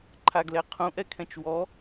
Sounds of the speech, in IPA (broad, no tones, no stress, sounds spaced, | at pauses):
ǃʰ a ɡ l ɛ qʰ ũ ʔ ɛ kʰ ɛ̃ t͡ʃ w ɔ